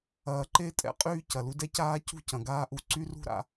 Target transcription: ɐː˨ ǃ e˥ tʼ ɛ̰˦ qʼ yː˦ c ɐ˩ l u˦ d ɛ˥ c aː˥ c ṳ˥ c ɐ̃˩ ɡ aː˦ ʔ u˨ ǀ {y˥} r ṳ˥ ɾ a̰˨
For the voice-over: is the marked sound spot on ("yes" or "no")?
yes